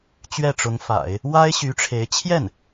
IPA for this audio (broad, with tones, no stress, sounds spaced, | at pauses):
t͡ɕ ɥ ɛ˥˩ ʈ͡ʂ ʊ˧˥ ŋ f a̰˨˩˦ ɪ̯ | w a˥ ɪ̯ ɕ y˧˥ ʈ͡ʂʰ e˧˥ ɪ̯ t͡ɕʰ j ɛ˥˩ n